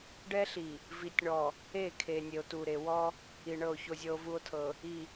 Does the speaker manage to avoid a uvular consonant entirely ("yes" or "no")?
yes